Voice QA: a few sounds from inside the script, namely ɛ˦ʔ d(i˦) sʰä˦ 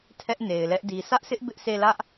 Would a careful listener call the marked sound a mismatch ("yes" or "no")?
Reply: yes